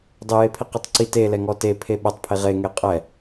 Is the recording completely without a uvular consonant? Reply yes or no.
no